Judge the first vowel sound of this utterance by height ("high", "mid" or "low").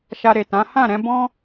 low